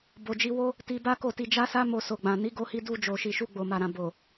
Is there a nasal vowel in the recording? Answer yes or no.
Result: yes